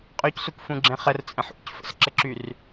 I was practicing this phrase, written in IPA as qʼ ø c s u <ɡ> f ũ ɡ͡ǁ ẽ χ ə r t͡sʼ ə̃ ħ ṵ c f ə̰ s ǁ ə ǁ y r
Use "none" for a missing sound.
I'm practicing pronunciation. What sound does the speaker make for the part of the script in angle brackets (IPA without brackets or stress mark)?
k